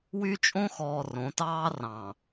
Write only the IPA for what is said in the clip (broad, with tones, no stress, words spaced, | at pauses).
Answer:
wy˦t͡ʃʼõ˦xɔː˨ rõ˨˦tɑː˦rɑ̃˨